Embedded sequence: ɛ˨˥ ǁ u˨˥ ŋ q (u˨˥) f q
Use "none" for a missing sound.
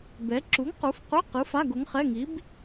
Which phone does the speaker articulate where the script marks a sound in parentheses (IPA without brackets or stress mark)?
u˨˥